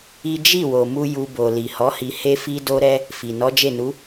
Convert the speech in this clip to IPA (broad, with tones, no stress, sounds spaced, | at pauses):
i˦ d͡ʒ i˦˨ w o˨ m u˧ j u˧ b o˨ l i˨ h ɔ˨˦ h i˧ h e˦ f i˦ d o˦ ɾ ɛ˦ | f i˨ n ɔ˨˦ d͡ʒ e˦˨ n u˨˦